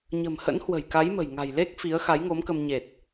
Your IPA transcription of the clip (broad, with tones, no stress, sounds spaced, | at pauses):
ɲ ə̤˨˩ m h ə̰˧˥ n h w ə̤˨˩ j k a˨˦ j m ə̤˨˩ j ŋ a̤˨˩ j l e˦˥ k̚ f i˨˦ ə̯ x a˨˦ j ŋ o˨˦ m k ə˧ m ɲ e˨˩ t̚